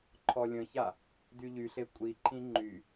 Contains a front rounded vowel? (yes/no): yes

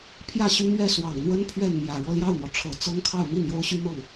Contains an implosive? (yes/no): no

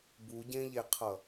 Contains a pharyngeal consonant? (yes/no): no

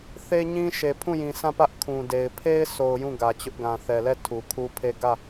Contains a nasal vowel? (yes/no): yes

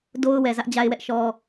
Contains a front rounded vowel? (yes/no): no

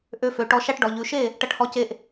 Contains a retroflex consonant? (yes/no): yes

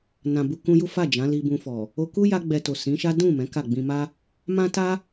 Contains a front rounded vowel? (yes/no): no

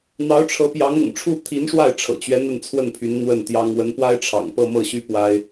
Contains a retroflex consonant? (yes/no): yes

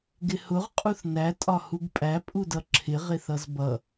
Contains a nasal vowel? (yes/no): no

